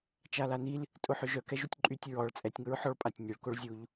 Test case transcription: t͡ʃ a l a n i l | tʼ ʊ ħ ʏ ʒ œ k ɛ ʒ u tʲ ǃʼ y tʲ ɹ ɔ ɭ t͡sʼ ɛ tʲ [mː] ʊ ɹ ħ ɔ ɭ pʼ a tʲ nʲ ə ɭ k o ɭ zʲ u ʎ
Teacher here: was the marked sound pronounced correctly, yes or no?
no